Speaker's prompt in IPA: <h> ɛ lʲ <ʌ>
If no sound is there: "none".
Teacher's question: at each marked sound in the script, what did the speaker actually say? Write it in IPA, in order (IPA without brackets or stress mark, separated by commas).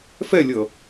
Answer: f, ʌ